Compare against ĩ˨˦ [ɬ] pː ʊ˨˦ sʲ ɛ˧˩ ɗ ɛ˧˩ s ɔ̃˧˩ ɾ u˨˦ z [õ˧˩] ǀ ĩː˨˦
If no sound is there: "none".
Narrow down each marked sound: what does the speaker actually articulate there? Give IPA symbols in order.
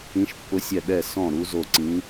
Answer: ʃ, o˧˩

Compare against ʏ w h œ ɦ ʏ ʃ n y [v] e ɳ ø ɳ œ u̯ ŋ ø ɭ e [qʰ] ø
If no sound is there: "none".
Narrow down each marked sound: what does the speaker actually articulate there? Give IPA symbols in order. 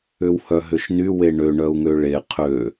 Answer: w, qʰ

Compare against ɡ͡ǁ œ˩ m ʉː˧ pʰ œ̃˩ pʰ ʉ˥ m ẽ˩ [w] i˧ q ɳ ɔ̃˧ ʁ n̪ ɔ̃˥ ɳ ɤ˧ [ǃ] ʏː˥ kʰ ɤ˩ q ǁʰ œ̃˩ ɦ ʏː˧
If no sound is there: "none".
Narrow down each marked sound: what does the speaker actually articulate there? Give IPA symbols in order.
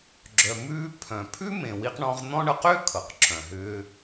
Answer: w, q

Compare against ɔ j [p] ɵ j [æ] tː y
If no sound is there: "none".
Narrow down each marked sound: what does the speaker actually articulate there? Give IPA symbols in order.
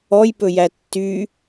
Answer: p, æ

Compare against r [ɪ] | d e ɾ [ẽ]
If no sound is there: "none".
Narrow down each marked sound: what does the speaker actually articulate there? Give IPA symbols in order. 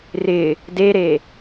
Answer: ɪ, e

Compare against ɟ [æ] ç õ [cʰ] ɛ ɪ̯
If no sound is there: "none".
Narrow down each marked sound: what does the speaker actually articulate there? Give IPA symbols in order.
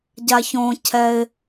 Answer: a, cʰ

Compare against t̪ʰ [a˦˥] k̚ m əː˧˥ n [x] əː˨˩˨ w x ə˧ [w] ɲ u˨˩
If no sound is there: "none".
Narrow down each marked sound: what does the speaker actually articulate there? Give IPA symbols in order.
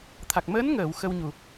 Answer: a˨˩, ŋ, w

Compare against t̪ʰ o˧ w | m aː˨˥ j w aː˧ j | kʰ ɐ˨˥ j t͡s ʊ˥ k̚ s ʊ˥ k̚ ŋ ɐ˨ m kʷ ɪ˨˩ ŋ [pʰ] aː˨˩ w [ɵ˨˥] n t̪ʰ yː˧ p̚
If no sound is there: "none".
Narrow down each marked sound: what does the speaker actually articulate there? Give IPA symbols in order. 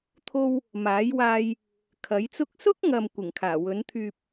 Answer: kʰ, ɵ˨˥

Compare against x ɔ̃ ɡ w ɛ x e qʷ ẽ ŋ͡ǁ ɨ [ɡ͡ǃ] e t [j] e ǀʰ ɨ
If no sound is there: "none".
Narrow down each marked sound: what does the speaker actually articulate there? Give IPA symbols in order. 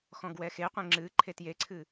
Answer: ǃʰ, j

